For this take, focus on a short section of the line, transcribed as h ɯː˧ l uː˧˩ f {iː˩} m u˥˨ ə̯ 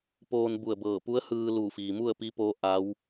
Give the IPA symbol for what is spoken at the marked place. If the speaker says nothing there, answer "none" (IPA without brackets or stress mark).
iː˩